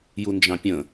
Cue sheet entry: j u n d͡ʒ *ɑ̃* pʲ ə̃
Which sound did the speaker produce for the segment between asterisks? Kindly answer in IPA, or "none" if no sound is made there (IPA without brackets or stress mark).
ɑ̃